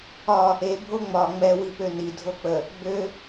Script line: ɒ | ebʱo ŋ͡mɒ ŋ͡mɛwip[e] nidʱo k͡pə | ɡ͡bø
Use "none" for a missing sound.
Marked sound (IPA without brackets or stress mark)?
ø